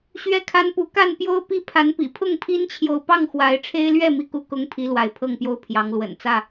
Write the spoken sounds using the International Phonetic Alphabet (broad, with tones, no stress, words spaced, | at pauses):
ɕɥɛ˦kʰa˦npu˨˦ ka˥˨npjo˦ʊ̯ pi˦pʰa˨˦npḭ˨˩ pʰʊ˥˨ŋpʰi˦nt͡ɕʰjo˨ʊ̯ pɑ˥˨ŋxwa˨˦ɪ̯ʈ͡ʂʰe˦ɪ̯lɥɛ˥˨ mi˥˨ku˦ kʊ˦ŋpʰi˨˦ lwa˨˦ɪ̯pʰɤ˥˨ŋpjo˦ʊ̯ pʰjɑ˨˦ŋlwə̰˨˩n t͡sä˥˨